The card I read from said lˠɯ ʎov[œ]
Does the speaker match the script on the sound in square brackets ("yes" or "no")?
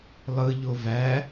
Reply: no